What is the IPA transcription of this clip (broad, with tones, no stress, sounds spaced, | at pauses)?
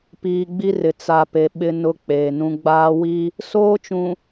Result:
p iː˨ ɡ͡b i˦ r ɪ˨ t͡s a˨ p e˨ ɓ ɪ˦ n ʊ˦ k͡p eː˨ n ũ˦ ɡ͡b aː˦ w i˦ | s oː˦ t͡ʃ ũ˨